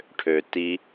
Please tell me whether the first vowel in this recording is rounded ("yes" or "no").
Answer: yes